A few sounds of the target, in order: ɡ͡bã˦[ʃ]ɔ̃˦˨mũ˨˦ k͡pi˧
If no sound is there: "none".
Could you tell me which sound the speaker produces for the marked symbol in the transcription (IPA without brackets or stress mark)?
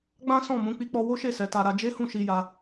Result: s